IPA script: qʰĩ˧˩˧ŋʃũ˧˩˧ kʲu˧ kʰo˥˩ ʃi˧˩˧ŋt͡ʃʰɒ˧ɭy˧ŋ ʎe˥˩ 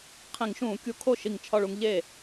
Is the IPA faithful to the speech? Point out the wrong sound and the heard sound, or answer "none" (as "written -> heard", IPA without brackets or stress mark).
y˧ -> u˧